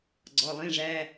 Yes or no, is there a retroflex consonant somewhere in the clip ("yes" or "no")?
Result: yes